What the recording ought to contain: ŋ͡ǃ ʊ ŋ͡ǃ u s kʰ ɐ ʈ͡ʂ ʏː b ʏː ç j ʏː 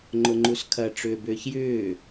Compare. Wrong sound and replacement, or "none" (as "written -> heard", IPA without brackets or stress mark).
none